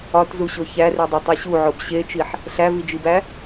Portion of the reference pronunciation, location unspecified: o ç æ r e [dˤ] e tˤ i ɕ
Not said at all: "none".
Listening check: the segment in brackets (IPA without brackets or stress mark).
dˤ